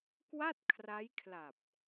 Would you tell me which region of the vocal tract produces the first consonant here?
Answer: velum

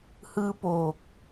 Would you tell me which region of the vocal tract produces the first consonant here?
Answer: throat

